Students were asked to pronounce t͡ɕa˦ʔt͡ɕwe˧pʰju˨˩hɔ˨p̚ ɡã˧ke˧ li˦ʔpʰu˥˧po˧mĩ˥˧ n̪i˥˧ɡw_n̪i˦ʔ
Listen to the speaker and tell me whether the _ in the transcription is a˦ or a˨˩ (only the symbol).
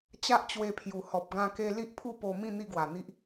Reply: a˨˩